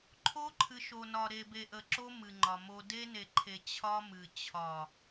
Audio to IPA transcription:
ǃʰo˦ǃʰɨ˨ʃo˨nɒ˨ ɾe˨be˨ʔə˨ǁo˦ mɨ˨ŋ͡ǃɒ˨mo˦ de˦ne˨ǃʰe˨ t͡ɕʰɒ˦mɨ˨ t͡ɕʰɒ˨

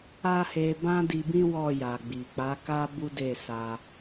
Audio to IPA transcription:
a˦he˧ bã˦di˧bĩ˦ wɔ˦˨ja˨ɡ͡bi˨ k͡pa˨˦ka˦ bu˦de˦˨sa˧

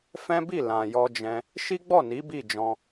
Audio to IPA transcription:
fɛ̃˦bi˦˨ lã˨jɔ˧d͡ʒɛ̃˧ | ʃi˦ɡ͡bɔ˦˨ni˨˦ bi˦˨d͡ʒɔ̃˧

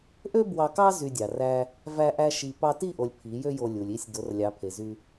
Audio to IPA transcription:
ʔø˦ bwɑ˧kɑ˦ zy˧dʲɑ˨ræ˦ | væ˦ʔæ˦ʃi˧ pɑ˧ti˦˨ʔo˨lʲ pʰi˨˦jø˦jo˧lʲu˨lʲ i˦˨sʲ do˨˦rlʲɑ˨˦pʰe˨zy˧

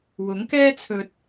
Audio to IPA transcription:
wʊ˨˥ŋkɛː˥t͡sʰɵ˧t̚

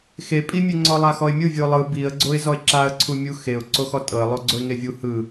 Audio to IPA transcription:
xepʼimʲe ŋ͡ǀɔlˠaxɔɪ̯mʲɯ vʲɯʊ̯lˠɯ biə̯ ɡ͡ǀoɪ̯zɔɪ̯ǁaə̯ ǀʰumʲuxeʊ̯ ǀoxɔtʼɤə̯lˠo ɡ͡ǀoɪ̯ŋevʲu hɯ

